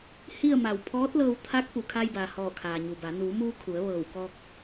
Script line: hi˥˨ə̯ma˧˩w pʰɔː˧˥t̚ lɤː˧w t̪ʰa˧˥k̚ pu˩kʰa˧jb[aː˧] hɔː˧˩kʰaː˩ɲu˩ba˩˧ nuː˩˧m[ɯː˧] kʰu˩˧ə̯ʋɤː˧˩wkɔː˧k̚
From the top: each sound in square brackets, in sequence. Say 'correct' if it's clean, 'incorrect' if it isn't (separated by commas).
incorrect, incorrect